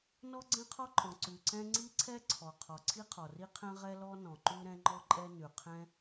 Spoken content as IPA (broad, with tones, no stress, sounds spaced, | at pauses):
n ɔ˥ ɡ͡ǀ ɛ̃˥ qʰ ɔ˥ ǃʼ ɔ̃˩ ǀ ʉ˩ ǀ ɛ̃˥ ŋ͡ǀ i˥ ǀʰ ɛ˥ ǀʰ ɔ˩ qʰ ɔ˩ ǀʰ i˥ qʰ ɔ˩ r i˥ qʰ ɛ̃˥ ʁ ɛ˥ l ɔ˥ n ɔ̃˩ ǃ ʉ˥ ɾ ɛ̃˥ ŋ͡ǃ ɔ˥ ǃʼ ɛ˥ n ʉ˩ qʰ ɛ̃˥